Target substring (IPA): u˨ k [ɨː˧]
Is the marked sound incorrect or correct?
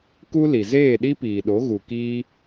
incorrect